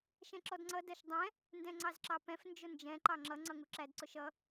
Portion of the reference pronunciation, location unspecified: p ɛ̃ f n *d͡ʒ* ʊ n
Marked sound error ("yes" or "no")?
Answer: no